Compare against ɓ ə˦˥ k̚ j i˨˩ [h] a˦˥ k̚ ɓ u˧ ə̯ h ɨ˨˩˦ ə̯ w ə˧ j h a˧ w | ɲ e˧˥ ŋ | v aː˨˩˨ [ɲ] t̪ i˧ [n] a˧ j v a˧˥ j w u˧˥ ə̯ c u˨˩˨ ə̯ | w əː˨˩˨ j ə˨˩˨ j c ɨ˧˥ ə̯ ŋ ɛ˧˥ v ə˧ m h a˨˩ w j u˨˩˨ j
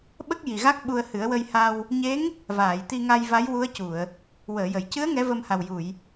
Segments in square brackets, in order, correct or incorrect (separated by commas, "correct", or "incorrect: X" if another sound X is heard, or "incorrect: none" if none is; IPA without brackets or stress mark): incorrect: ɣ, incorrect: j, incorrect: ŋ